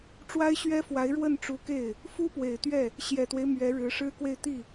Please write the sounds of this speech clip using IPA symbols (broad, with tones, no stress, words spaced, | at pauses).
ʈ͡ʂwa˥ɪ̯ɕɥɛ˥fwa˧˥ɪ̯ ɻwə˥˩nʈ͡ʂu˧˥ke˥˩ɪ̯ | fu˥pwe˨˩ɪ̯t̪ɥɛ˥˩ | ɕjɛ˨˩t̪we˦ɪ̯ mɥɛ˧˥ɻɻ̩˧˥ ʂɻ̩˥kwe˥˧ɪ̯ t̪i˥˩